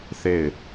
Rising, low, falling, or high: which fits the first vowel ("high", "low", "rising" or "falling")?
falling